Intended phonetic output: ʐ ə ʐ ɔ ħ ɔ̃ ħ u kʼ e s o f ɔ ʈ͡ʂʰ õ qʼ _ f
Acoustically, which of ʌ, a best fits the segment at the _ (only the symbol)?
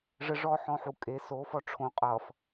ʌ